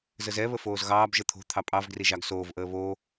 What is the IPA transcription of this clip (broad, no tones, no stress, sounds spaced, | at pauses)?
z ə z ɛ β ə f oː z ɣ ɑː b ʒ ə t̪ʰ o̤ t̪ʰ ɑ pʼ ɑ v ɡ r i ʒ ɑ ɡ s oː v ʔ əː β o